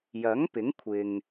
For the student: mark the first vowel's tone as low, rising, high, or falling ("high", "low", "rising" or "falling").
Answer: rising